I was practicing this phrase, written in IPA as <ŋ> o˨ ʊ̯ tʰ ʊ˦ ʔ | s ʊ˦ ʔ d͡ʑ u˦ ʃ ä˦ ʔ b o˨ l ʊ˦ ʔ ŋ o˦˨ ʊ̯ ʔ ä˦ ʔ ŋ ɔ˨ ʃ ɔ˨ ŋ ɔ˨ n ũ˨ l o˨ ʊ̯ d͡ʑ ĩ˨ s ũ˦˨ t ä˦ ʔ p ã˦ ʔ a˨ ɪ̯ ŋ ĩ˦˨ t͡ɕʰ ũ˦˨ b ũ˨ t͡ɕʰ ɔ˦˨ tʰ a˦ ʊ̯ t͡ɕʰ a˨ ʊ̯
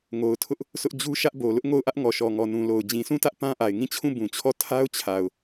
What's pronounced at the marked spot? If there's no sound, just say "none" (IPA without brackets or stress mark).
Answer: ŋ